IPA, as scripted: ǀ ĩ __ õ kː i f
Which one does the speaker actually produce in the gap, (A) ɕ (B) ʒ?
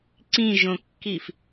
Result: B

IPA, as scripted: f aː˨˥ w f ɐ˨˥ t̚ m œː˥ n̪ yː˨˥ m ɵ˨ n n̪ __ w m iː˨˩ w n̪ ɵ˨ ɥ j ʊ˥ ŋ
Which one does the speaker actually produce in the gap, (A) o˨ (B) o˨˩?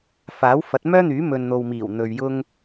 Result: A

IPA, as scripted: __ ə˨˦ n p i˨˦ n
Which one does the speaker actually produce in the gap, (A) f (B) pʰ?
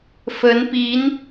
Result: A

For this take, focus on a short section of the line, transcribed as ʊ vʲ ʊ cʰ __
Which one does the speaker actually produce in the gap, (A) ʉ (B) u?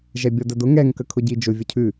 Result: A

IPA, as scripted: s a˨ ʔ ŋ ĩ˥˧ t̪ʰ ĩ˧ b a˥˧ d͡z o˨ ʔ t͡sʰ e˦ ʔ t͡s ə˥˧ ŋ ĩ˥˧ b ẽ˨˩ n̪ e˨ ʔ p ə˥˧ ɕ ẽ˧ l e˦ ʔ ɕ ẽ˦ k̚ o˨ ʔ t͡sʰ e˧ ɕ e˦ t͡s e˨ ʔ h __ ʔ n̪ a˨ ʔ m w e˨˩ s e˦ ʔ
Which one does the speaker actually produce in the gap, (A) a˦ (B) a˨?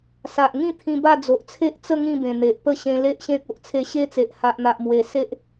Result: B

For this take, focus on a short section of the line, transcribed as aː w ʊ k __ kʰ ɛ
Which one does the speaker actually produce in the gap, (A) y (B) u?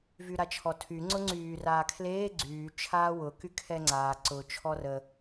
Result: A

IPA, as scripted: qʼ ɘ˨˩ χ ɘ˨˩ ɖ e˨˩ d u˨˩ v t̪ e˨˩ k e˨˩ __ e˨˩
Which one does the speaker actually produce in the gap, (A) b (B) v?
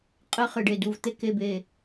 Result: A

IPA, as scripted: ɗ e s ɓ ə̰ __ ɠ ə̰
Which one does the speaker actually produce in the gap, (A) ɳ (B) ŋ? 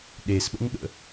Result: B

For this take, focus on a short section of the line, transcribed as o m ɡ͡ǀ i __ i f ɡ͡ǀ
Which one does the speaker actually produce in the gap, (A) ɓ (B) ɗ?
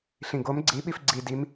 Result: A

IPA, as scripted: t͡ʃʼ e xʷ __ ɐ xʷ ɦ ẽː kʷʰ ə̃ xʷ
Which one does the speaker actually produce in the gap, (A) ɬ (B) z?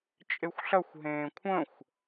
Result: A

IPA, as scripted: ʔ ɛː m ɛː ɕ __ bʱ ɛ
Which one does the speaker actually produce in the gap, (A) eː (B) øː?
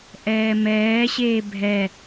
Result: A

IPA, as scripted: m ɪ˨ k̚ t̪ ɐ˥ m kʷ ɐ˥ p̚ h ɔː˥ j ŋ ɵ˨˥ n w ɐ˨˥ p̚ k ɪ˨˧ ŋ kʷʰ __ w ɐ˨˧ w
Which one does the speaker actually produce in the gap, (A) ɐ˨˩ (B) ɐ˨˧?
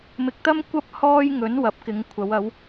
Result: B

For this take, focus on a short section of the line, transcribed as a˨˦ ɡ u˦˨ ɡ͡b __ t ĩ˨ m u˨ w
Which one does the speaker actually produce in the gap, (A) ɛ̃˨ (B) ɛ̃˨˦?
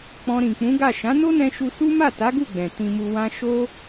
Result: A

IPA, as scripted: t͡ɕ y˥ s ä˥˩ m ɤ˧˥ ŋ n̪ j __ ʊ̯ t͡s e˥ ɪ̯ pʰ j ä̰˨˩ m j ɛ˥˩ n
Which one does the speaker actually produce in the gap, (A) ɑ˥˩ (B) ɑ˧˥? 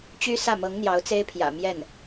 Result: B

